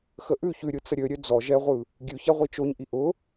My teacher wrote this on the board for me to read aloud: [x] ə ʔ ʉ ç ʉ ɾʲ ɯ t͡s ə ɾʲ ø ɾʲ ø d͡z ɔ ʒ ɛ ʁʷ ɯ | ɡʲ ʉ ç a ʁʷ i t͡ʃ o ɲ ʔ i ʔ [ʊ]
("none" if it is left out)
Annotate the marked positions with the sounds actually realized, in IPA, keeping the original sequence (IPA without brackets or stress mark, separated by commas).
x, ʊ